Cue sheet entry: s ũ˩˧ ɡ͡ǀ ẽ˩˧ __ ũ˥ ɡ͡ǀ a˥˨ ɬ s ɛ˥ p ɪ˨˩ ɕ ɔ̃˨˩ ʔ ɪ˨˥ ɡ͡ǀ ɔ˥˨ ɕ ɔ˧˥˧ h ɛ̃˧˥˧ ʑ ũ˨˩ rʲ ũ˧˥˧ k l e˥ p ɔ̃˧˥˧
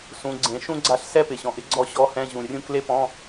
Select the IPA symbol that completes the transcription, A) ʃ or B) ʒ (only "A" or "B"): A